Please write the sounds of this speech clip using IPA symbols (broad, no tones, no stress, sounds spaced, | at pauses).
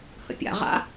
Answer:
h ə̰ pʲ a̰ ʁ a̰